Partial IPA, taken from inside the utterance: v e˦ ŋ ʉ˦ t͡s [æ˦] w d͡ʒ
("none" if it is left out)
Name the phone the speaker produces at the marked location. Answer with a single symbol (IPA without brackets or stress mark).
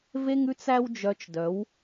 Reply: æ˦